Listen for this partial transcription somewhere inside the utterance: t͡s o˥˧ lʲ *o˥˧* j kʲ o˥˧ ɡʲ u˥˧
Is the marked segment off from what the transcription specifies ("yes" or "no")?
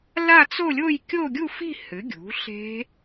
no